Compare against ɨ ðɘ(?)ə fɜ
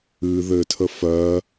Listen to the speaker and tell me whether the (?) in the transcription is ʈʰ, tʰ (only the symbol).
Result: tʰ